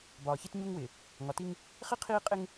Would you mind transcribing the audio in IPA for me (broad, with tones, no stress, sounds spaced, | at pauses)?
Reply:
b ɒː˨ ç i˦ t ɲ u˦ ŋ w ɪː˨ | ŋ ɒ˨ t i˦ ŋ | χ i˦ qʰ iː˦ qʼ ɪ˦ ŋ